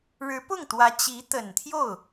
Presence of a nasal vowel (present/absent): absent